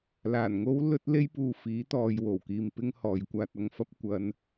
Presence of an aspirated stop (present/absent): absent